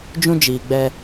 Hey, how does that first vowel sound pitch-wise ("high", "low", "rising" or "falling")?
high